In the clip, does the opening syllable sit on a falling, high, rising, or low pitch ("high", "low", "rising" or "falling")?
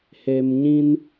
low